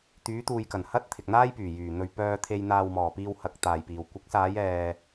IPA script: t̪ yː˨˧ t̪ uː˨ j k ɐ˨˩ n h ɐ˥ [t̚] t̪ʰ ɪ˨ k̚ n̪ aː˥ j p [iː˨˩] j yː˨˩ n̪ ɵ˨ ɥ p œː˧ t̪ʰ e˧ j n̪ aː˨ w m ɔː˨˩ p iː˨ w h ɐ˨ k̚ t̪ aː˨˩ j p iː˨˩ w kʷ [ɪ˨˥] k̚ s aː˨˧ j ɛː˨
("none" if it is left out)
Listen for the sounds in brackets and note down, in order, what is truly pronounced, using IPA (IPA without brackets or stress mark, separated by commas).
t̚, yː˨˩, ɪ˨˥